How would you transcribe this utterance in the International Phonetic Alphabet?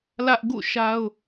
lä˦ʔ ɡṵ˦˨ʃa˦ʊ̯

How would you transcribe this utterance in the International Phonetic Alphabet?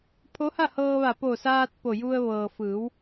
pʰo˧˥ha˥˨hɤː˧ʋa˧˩ po˧˩saː˧t̚ po˧˩ju˧ə̯ ʋɤː˩fɯː˩˧w

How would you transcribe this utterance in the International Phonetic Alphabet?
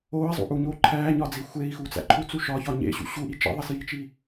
oːi̯zˤṵʔuɲoː ǃʰæːɲɒd͡zi xʷei̯xut͡sæ̰ ǃʰut͡su ʃɒçɒ ɲḛɕṵ ɕuʔi t͡ʃḭðˤisjit͡ʃi

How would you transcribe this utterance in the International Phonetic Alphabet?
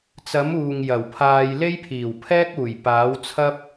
t͡sɐ˨˥muː˨ŋ jɐ˨˩wpʰaː˧j le˥jpʰiː˨˩wpʰɛː˥k̚uː˨˩j paː˨˥wt͡sʰɐ˥p̚

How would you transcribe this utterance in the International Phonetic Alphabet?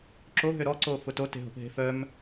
ǁoɦø ɾɔǀofʊ tote̤ɦo̤pɦe̤ fœm

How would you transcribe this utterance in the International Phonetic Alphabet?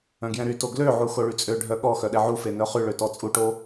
œ̃ɡjɛ̃ɾyto ɡløʕu xoɭyt͡sʼøɖʱœ ɠɔ xœɗɛʕufe nœχyɭø tɔt͡sʼuʈo

